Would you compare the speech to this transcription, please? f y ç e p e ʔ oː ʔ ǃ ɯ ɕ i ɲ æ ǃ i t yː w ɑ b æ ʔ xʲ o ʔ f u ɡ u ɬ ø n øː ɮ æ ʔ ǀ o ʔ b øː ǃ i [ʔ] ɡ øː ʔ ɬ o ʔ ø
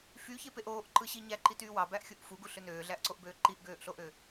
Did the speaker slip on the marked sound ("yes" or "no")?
no